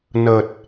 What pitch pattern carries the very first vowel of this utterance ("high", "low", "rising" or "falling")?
low